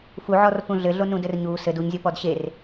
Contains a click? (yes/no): no